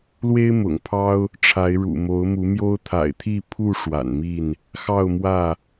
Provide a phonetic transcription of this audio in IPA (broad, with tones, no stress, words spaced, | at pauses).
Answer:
lwe˦ɪ̯mʊ̰˨˩ŋpʰɑ˦ʊ̯ | ʈ͡ʂʰa˨˦ɪ̯ ɻṵ˨˩mo˨˦ʊ̯mu˨˦mjo˦ʊ̯ t̪ʰa̰˨˩ɪ̯ t̪ʰi˥˨ pʰu˥˨ ʂwa̰˨˩nmi˥˨n | xɑ˥˨ʊ̯mwä˥˨